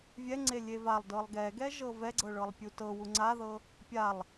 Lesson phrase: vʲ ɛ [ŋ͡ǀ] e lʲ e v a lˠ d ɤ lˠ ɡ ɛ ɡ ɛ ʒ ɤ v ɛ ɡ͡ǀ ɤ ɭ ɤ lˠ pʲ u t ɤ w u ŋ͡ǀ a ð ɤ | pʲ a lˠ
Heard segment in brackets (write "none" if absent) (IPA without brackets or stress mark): ŋ͡ǀ